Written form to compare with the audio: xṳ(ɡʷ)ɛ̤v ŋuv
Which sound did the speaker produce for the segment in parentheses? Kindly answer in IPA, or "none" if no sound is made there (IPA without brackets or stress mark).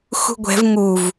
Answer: ɡʷ